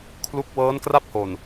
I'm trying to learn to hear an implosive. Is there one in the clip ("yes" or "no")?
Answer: no